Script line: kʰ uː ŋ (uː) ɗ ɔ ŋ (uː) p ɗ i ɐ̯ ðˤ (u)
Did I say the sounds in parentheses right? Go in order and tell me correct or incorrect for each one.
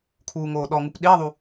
incorrect, incorrect, correct

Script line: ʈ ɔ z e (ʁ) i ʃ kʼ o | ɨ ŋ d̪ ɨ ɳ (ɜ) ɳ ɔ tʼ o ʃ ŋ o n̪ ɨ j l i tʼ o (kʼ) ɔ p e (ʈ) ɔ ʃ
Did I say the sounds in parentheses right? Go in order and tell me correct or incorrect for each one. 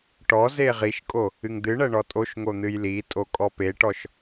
correct, correct, correct, correct

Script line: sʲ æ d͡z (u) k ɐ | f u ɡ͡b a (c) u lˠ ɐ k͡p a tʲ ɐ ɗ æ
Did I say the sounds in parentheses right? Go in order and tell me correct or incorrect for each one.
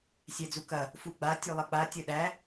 correct, incorrect

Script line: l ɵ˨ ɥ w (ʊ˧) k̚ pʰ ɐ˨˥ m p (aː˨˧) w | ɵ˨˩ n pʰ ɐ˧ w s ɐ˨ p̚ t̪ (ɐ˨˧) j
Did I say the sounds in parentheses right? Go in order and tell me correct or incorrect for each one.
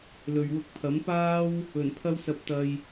correct, incorrect, incorrect

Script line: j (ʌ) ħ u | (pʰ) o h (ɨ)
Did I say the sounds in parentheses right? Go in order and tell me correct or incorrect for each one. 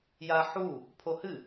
incorrect, correct, correct

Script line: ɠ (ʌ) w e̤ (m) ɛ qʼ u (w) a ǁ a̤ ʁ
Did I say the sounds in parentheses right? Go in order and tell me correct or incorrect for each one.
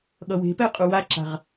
correct, incorrect, correct

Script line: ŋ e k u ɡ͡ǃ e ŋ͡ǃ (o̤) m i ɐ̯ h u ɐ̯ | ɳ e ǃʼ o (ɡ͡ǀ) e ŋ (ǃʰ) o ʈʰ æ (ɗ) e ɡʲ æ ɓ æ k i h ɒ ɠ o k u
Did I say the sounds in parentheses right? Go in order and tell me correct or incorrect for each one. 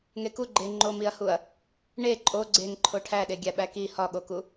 incorrect, correct, correct, correct

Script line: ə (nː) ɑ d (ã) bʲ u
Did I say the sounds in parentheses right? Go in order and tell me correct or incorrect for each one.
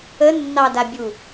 correct, incorrect

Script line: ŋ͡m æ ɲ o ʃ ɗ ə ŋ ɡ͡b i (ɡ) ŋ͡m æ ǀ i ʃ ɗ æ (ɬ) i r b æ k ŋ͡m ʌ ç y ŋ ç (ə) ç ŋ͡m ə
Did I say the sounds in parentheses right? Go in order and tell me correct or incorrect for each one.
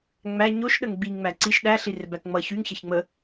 incorrect, correct, incorrect

